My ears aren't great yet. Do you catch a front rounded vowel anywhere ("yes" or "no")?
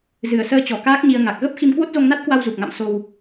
no